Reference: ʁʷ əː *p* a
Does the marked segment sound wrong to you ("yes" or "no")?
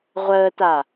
yes